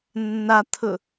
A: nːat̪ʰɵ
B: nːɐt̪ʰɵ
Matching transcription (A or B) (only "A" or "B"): A